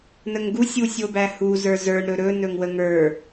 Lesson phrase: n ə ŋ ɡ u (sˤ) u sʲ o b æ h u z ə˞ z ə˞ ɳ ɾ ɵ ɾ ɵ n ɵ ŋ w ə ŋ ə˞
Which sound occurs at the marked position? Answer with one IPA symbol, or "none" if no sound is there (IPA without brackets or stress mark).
sʲ